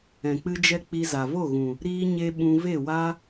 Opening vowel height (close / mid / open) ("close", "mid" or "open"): mid